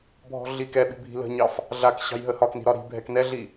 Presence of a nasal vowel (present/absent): absent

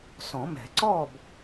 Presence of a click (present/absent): present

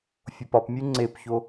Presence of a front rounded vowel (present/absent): absent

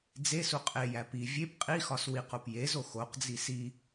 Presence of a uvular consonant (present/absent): present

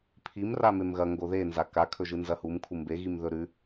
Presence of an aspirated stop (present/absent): present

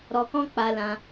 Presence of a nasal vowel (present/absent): present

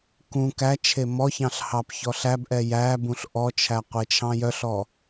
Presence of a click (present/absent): absent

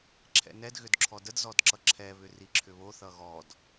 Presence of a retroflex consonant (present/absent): absent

